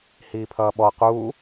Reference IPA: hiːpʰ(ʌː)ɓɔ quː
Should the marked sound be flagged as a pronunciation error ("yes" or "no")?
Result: no